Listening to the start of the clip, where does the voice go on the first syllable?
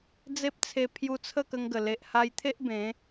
high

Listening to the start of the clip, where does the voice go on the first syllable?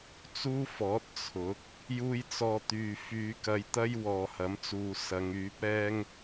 high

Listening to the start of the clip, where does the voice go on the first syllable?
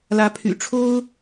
rising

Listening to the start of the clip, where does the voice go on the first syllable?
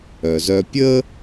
low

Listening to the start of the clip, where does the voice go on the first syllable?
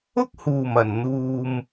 high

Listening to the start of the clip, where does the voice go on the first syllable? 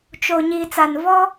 low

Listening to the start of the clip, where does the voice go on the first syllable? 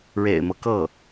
low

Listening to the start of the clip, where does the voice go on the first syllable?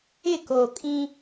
falling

